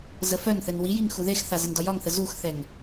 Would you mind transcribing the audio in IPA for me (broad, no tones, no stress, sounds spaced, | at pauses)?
z ə f œ n θ ɘ n w i j i ŋ x u ð e x θ a z ɘ n d ɒ j ɒ ŋ θ ə z u x θ ɛ ŋ